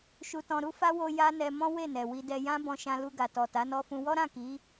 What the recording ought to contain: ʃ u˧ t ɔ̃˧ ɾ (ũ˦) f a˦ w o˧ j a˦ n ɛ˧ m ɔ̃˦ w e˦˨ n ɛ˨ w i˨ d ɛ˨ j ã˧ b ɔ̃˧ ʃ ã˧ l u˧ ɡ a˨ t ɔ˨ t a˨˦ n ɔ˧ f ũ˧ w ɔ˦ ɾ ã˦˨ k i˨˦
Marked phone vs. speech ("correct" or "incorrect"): incorrect